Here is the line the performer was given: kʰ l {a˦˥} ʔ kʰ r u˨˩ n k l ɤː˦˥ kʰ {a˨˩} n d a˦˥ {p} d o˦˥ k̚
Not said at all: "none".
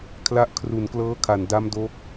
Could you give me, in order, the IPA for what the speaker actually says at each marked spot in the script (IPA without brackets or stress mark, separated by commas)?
a˦˥, a˨˩, m